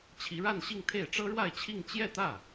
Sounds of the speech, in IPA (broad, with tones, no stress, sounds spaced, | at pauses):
t͡ɕʰ i˧˥ ɻ a˥˧ n ɕ i˥˧ ŋ t̪ʰ e˥˩ ɪ̯ ʈ͡ʂ ɤ˥ ɻ w a˥˧ ɪ̯ t͡ɕʰ i˥˧ ŋ t͡ɕ j ɛ˥˧ t̪ ä˥˩